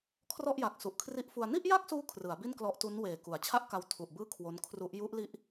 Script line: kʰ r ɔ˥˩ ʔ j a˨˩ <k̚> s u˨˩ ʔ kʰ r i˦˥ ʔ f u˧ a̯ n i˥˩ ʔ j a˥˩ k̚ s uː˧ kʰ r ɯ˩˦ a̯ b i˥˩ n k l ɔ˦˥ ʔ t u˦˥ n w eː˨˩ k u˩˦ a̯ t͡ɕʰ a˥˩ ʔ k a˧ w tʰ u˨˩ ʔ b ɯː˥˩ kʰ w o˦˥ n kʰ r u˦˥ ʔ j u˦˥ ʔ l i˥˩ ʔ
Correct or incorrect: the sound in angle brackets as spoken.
correct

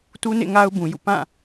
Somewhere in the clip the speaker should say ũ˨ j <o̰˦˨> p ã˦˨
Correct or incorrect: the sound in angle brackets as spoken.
incorrect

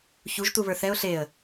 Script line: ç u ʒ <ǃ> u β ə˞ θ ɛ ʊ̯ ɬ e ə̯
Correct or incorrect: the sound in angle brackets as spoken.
incorrect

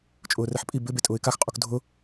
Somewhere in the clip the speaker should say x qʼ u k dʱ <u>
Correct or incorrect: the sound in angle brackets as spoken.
incorrect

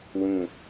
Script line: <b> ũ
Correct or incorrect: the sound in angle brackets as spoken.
incorrect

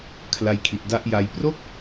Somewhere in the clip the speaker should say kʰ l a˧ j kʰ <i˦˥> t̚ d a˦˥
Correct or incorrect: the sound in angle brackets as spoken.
incorrect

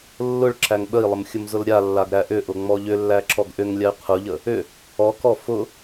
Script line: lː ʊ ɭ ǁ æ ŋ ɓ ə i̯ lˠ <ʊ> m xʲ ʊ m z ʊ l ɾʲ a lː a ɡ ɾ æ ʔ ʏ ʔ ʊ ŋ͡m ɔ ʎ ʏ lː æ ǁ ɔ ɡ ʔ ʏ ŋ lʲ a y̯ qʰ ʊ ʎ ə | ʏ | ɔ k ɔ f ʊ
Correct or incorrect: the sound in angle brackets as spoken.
incorrect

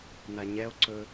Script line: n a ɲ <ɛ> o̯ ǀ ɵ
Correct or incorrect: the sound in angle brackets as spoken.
correct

